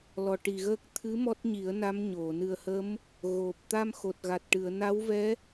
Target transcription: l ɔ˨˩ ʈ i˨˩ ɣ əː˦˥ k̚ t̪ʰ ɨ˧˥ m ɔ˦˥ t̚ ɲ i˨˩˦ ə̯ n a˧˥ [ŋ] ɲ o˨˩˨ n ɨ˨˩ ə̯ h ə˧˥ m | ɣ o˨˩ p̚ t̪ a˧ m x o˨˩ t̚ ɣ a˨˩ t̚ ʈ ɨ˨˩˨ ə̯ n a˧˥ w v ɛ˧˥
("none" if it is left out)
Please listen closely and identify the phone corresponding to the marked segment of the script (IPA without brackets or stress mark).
m